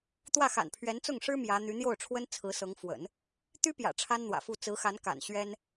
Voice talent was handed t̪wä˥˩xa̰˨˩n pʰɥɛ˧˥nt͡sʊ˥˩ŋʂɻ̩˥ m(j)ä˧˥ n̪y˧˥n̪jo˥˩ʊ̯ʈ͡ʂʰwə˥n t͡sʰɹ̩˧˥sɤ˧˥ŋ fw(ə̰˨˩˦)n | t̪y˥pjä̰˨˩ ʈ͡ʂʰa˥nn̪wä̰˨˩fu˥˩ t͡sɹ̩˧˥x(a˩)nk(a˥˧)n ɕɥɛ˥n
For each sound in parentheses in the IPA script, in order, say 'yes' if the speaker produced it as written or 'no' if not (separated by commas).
yes, yes, no, no